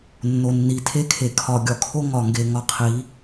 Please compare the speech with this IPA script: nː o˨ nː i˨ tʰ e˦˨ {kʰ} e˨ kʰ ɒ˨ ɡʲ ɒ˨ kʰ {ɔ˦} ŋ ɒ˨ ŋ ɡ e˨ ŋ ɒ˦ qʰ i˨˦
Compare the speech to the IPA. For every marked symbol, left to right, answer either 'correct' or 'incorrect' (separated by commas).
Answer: correct, incorrect